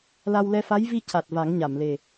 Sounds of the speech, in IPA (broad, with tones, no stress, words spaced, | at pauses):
la˧wlɛ˧ fa˧˥jvi˧ ca˨˩t̚ va˨˩˦ŋɲa˨˩˨mle˨˩